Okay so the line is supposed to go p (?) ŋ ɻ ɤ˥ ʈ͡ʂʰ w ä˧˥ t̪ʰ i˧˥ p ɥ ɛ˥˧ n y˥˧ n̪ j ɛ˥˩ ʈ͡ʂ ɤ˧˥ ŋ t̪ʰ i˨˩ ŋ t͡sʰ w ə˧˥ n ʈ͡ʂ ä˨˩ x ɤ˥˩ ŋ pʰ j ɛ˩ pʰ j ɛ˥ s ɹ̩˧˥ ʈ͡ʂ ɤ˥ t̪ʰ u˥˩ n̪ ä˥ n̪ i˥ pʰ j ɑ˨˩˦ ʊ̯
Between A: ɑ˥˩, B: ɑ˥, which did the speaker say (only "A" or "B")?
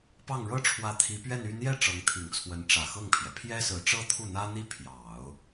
A